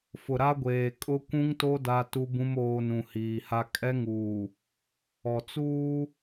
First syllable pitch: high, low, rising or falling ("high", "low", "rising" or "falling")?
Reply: low